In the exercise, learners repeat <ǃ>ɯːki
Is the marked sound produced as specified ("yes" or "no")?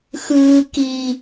no